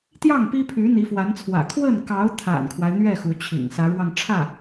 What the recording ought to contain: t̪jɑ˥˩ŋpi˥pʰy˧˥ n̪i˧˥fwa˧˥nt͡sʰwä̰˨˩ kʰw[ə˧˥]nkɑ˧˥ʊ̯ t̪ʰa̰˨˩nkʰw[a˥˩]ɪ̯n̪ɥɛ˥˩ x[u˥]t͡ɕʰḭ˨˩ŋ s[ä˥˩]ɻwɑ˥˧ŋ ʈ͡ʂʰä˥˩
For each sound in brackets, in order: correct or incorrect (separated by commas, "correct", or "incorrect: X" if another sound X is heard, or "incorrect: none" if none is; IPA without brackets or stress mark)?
incorrect: ə˥˩, incorrect: a˦, incorrect: u˧˥, incorrect: ä˧˥